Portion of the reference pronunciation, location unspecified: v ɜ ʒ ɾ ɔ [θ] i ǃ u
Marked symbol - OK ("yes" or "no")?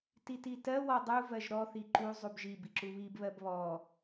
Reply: yes